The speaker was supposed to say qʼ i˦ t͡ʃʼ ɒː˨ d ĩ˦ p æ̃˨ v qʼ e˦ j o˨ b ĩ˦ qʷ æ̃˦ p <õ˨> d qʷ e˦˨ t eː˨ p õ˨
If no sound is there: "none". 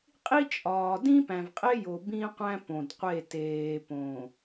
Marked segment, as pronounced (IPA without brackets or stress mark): õ˨